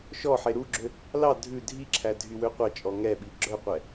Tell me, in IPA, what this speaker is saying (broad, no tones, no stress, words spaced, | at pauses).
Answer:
ʃɔħe ɾuɡ͡ǁø | lɑ dʱʉ dʱiǁʰæ dʱywøqʷɑt͡ʃʼɔ ŋɛɓi ɡ͡ǁœqʷɛ